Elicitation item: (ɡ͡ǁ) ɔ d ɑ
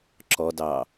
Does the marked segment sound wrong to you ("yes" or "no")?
yes